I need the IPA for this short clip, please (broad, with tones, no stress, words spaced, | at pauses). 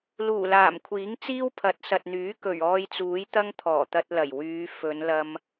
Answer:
luː˨˩laː˨˩mkʷʰiː˨˥ŋ t͡siː˥wpʰɐ˨˥t̚ sɐ˨t̚n̪yː˨˥ kɵ˨˩ɥɔː˧jt͡suː˨˥jt̪ɐ˥ŋ t̪ʰɔː˨˩t̪ɐ˧t̚lɐ˨˩j wyː˨˧ fɵ˨˧nlɐ˧m